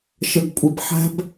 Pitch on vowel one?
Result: low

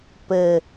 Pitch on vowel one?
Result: low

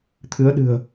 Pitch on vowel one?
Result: rising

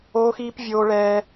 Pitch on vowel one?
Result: high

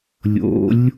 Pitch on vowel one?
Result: rising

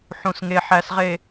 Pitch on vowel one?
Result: low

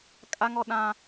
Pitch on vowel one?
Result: high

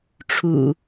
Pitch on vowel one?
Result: low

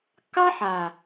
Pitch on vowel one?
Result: high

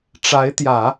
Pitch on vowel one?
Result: rising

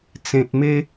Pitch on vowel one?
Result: low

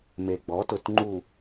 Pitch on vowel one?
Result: low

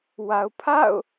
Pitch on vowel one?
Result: low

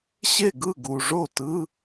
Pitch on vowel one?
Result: falling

